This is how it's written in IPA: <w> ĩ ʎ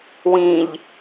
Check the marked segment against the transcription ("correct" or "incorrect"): correct